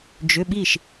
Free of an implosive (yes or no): no